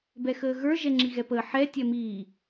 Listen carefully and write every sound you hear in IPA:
b ɛ x əː ɣ ə˞ ʒ ɛ ŋ͡ǁ i ɣ ɛ p əː ħ ɛ tʲ ɛ m iː

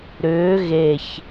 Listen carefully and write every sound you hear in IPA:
ɾ ʏː ɣ e ç

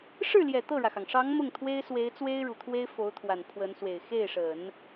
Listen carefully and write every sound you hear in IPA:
ʂ ɻ̩˥˩ l j ɛ˨˩ t̪ ɤ˥˩ ɻ ä˩ x ɑ˩ ŋ ʂ ɑ˧˥ ŋ m ʊ˥˩ ŋ t̪ʰ w e˥ ɪ̯ s w e˧˥ ɪ̯ t͡s w e˥ ɪ̯ ɻ u˨˩ t̪ʰ w e˥ ɪ̯ f o˧˥ ʊ̯ t̪ʰ w a˨˩ n pʰ w ə˧˥ n s w e˨˩ ɪ̯ x e˥˩ ɪ̯ ʂ ə˨˩˦ n

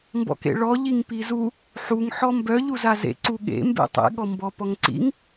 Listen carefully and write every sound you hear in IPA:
m b ɔ̰ k ḛ ɭ ɔ ʎ i ŋ p i z u | ħ u ŋ ħ ɔ m b œ ʎ u z a z ḛ ǀ u ɠ ḛ m b ḛ tˤ ḛ ɠ ɔ m b ɔ p ɔ ŋ ǀ ḭ ŋ

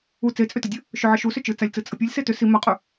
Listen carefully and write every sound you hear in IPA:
u t͡s e t͡sʼ ʏ t ə dʲ ɵ | ʃ ʏ ʕ ə ʃ u s ʏ t͡ʃ ɯ t͡s a lʲ t͡s ɯ t͡sʼ ə pʲ ɯ lʲ s e t ʏ s i m a qʼ ɵ

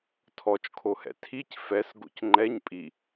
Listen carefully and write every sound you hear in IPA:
tʰ ɔ t͡ʃ kʰ o h ɛ̰ tʰ i c f ɛ s ɡ o̰ c ŋ͡ǃ ɛ ɲ pʼ i

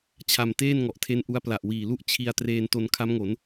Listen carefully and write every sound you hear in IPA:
t͡ɕʰ a˧ m t eː˥˩ n ŋ ɔ˨˩ ʔ tʰ e˦˥ n ʔ u˦˥ a̯ p l a˨˩ ʔ w iː˨˩ l u˥˩ ʔ t͡ɕʰ i˧ a̯ t r eː˧ n t o˧ n kʰ a˦˥ m ŋ o˩˦ n

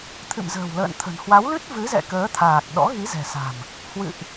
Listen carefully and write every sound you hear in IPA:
t̪ʰ ɨ̰˧˨ m z ə̤ː˨˩ w l ə̰ː˧˨ n t̪ʰ ə̤˨˩ n h w a˨˦ w l ɨ˦˥ t̚ v ɨ˨˦ z ɛ̰˧˨ k əː˨˦ t̪ʰ aː˨˩ k̚ ɗ ɔ̰˧˥ ɣ i˨˦ z ɛ̤˨˩ s a̤˨˩ m | h w ɨ̰˧˨ ʔ

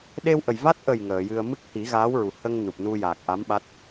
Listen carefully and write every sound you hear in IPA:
ɗ e˧ w ʔ ə˨˩ j v a˦˥ t̚ ʔ ə˨˩ j ŋ əː˨˩˨ j ɨ˧ ə̯ m ɨ˦˥ k̚ h i˨˩˦ ɣ aː˧˥ w ɹ u˨˩ h ə˧ ŋ n u˨˩ p̚ n u˧ j a˨˩ k̚ ʔ a˧˥ m ɓ a˦˥ t̚

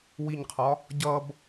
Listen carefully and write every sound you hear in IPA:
w i ɲ qʰ ɒ | ɟ ʌ b

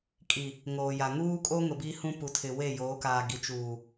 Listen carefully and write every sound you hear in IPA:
kʼ i˨ | ŋ oː˨ j a˨ ŋ uː˦ kʼ o˦ ŋ ʊ˨ b i˦ h ũ˦ p u˨ tʰ ɪ˨ w e˦˨ j oː˨˦ k aː˨ ɡ i˨ t͡ʃ uː˨

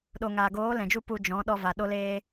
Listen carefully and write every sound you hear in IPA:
ɗ o˨ ŋ aː˨ ɡ oː˨˦ l ɛ̃˨ d͡ʒ u˦ p u˧ d͡ʒ ɔ̃˨˦ ɗ ɔ˧ v a˨ ɗ o˧ l eː˧

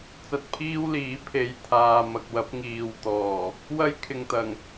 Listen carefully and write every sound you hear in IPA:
t͡s ɐ˧ t̚ pʰ iː˥ w l iː˨˥ pʰ e˨˧ j t̪ʰ aː˨ m ɐ˨ k̚ w ɐ˨˥ p̚ ŋ iː˨ w t̪ ɔː˨˩ | w ɐ˥ j kʰ ɪ˨ ŋ t̪ ɐ˨˩ ŋ

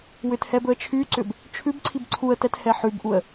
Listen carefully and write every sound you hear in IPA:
w ʏ t h ɛ b ɵ ə̯ t͡ʃʰ y ǀ ʏ b | t͡ʃʰ ʉ b ǀʰ i b ǀʰ u ə̯ t ɛ t h ɛ ħ ʉ b ʔ u ə̯

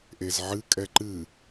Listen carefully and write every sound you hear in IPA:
ʔ e z ʕ ɨ kʼ ɛ ǃ ɨ

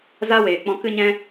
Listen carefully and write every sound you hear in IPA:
z a˦ w eː˨ k͡p ɔ̃˧ k ɨ˦ ɲ ɛ̃˦

